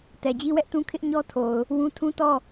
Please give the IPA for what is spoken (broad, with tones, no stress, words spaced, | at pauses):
tɛ˨d͡ʑi˦wɛ˦ʔtũ˦ kʰɪ˦ʔɲɔ˦tʰo˨ʊ̯ | wũ˦ tʰũ˦tɔ˦˨